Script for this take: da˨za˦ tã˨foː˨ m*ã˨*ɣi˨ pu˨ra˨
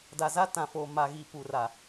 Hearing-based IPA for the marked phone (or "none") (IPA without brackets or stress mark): a˨